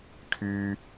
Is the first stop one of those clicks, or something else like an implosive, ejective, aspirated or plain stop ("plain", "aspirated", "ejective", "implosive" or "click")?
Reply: aspirated